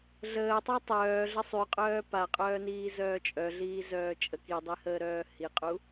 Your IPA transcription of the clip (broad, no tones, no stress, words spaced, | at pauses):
ɮəːtˤy tˤœːɮə sˤyqʼœː paqʼœːniːzœː t͡ʃʼœɮiːzœːt͡ʃʼə kidˤihəːɾœː hiqʼu